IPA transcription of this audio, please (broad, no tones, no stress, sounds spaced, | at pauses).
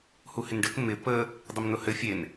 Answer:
h u h ɪ n ɖ ɘ k m ɪ p ə | dˤ ɪ m n ʊ h ɘ fʲ e n